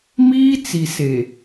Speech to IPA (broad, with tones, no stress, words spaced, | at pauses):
miː˦ t͡si˨se˨